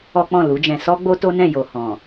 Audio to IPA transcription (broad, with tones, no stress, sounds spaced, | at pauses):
ɔ˦ k͡p ɔ̃˦˨ l u˨˦ d͡ʒ ɛ̃˧ s ɔ˦ ɡ͡b o˦ t o˦ n ɛ̃˦˨ j o˨ h ɔ̃˨